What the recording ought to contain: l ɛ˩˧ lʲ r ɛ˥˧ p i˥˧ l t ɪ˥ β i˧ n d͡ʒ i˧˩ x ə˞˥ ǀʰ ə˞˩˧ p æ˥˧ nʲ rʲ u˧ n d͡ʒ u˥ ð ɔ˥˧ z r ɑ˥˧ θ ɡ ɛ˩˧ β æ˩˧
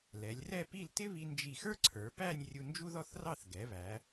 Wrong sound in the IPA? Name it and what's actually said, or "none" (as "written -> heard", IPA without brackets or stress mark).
z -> θ